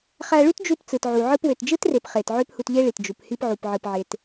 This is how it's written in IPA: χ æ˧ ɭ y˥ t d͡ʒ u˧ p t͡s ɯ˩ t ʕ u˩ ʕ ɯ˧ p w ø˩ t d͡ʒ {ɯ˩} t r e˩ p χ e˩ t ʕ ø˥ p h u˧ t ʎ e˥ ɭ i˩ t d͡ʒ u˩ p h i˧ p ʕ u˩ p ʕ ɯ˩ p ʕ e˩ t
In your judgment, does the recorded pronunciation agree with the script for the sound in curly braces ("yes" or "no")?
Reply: no